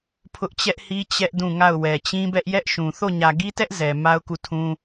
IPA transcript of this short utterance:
pʰ ʊ˦ ʔ t͡ɕ ɛ˦ ʔ h i˦ t͡ɕ ɛ˦ ʔ d ũ˦˨ ŋ a˦˨ ʊ̯ w ɛ˨ t͡ɕ ĩ˦ b ɛ˦ ʔ j ɛ˦ ʔ ʃ ũ˨ θ o˦˨ ɲ ä˨ ɡ i˦ t ɛ˦ ʔ z ɛ˨ m a˦ ʊ̯ k u˦˨ tʰ ũ˦

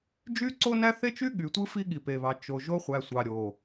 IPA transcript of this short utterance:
d͡ʒ y˦ ǀ o˦ n æ˦ θ e˦ t͡ʃ y˦ ɠ y˨ tʷ ɯ˦ f i˦ ɠ i˨ p e˨ β ɑ˨ t͡ʃ o˨ ʒ o˦ χʷ æ˨ sʷ ɑ˨ ɾʲ o˨

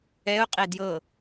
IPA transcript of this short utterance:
ɛ ʊ̯ qʼ e d j ɤ

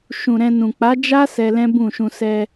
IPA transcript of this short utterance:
ʃ ũ˨ ɾ ɛ̃˧ n ũ˨ k͡p a˨˦ d͡ʒ a˦ s ɛ˧ l ɛ̃˦ b ũ˦˨ ʃ ũ˧ s ɛ˧

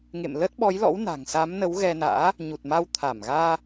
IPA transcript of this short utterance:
ŋ ḛ˧˨ m l ə˦˥ t̚ ɓ ɔ˨˦ j l ɔ̰˧˥ w n a̤˨˩ ŋ s a˨˦ m n ə˨˦ w ɣ ɛ˧ n a̰ː˧˥ | ɲ u˨˩ t̚ m a˧ w t̪ʰ a˧˩ m ɣ aː˧

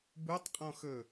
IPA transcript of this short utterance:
b u tˤ qʼ ɔ̃ x ɵ

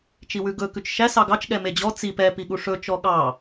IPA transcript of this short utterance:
t͡ʃ i w ʉ ɡ ɵ k ʉ t͡ʃ ʃ æ s ɑ ɡ ɑ t͡ʃ ɠ ɛ m e d͡ʑ ɔ t͡s i p ɛ p i ɠ u ʂ ɵ t͡ʃ ɔ ɠ ɑ

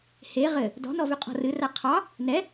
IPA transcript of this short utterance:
h e ʁ ɘ | d ɔ̤ n ɔ v ʏ qʼ ɔ̤ r ɨ r a qʰ ɑ | n ɛ

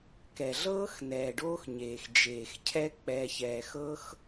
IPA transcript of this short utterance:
k ɛ˨ ɮ ɤː˦ x n ɛː˨ ɖ oː˦ x ɲ eː˨ x d͡ʒ eː˨ x cʰ ɛ˦ k͡p ɛː˧ ç ɛː˧ x ɤ˦ x

